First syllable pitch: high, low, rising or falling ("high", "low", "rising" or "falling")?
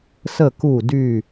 falling